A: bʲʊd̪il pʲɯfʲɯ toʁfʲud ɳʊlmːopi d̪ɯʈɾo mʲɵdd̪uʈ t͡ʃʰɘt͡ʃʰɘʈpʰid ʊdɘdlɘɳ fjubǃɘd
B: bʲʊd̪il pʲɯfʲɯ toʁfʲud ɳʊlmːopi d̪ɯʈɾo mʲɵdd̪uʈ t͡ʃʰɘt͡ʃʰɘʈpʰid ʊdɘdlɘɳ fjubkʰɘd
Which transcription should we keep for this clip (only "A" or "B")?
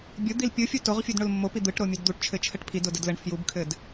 B